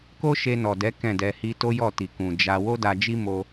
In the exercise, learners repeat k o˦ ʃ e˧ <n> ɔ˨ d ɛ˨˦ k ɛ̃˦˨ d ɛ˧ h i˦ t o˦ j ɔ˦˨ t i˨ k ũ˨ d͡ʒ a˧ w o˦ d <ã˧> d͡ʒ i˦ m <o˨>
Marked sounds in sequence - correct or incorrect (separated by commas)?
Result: correct, incorrect, incorrect